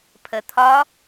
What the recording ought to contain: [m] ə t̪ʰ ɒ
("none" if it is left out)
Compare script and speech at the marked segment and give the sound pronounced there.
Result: pʰ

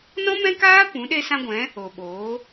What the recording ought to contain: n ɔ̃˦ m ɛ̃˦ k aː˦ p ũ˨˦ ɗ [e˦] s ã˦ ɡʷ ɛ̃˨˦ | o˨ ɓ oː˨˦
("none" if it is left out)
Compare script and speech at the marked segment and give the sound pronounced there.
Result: e˦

